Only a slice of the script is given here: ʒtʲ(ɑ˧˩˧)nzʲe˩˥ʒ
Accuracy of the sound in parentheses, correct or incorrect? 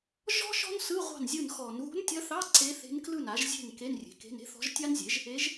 incorrect